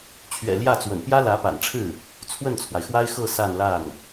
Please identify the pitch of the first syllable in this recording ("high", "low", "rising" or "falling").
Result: low